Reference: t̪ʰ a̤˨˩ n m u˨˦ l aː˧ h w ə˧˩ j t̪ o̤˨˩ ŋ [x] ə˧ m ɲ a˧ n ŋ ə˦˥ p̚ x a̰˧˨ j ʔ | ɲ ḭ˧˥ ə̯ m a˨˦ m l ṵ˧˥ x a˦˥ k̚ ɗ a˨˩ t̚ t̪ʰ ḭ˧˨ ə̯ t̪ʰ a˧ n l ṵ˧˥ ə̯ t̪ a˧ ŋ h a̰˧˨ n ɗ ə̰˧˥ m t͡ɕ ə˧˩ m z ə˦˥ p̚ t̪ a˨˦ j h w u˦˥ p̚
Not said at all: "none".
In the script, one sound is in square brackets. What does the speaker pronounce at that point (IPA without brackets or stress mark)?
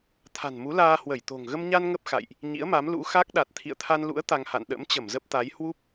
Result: ɣ